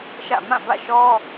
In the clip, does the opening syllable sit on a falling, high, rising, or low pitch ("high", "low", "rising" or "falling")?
falling